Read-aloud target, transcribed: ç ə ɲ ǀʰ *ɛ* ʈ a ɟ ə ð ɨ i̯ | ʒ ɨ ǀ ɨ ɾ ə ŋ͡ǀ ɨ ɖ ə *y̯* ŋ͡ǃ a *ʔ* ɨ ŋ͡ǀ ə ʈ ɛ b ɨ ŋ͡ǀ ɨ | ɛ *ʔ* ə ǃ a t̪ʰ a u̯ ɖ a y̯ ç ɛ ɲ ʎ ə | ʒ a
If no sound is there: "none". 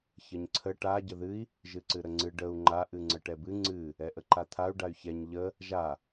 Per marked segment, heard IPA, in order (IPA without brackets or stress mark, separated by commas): ə, u̯, ʔ, ʔ